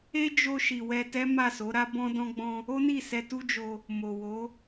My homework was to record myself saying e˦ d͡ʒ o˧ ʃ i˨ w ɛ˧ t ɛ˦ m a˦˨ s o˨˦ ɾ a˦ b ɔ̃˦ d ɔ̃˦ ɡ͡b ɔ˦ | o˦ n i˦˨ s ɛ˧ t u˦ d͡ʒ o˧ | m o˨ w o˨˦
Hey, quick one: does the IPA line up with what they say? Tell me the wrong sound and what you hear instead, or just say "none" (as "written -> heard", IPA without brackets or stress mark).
ɔ˦ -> ɔ̃˦